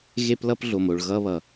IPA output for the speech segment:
ɣ e˧ p l ʌ˧ p ɮ o˩ m o˩ ɭ ɣ ʌ˧ β ʌ˩

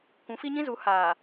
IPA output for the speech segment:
kʷ ũ˨˦ f i˦ ɲ ĩ˦ z u˨˦ h aː˨

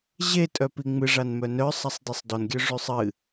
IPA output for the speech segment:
ʑ e tʼ œ p i ŋ͡m ɨ ʐ a n m œ n œ sˤ a sˤ d i sˤ d ɔ n ɡʲ œ ʐ ʉ sˤ ɨ

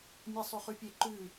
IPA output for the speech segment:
mʲ e sˤ y χ ʉ pʲ e ǃ ʉ

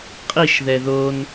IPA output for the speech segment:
qʼ i ʃ ð ɛ ð o n

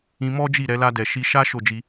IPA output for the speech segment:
ĩ˧ m ɔ˦ d͡ʒ i˦˨ ɾ ɛ˧ l a˧ d ɛ˨ ʃ i˧ ʃ a˦ ʃ o˦˨ d͡ʒ i˧

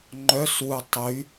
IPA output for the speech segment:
ŋ͡ǃ œ s w u tˤ y

